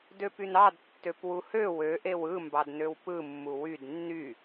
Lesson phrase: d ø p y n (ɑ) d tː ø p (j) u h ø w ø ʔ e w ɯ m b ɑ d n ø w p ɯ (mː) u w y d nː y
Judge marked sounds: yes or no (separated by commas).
yes, no, yes